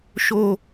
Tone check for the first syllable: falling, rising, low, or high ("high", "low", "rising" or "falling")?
high